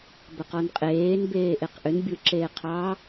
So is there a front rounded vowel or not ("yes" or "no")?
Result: yes